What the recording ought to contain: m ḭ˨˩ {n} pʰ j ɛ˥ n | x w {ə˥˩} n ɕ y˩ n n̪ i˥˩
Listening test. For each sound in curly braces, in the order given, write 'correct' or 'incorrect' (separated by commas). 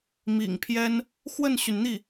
incorrect, correct